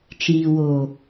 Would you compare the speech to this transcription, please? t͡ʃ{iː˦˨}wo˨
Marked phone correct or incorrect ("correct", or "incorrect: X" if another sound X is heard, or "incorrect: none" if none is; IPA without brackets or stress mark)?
incorrect: iː˨